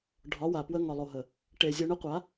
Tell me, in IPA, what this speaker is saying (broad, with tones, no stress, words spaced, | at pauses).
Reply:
ɖʱɒ˨˦wa˨ pwə˧ ŋɒ˨lˠo˨ɦə˨ | ʈe˨ zʲo˧ɳə˦qʷa˨˦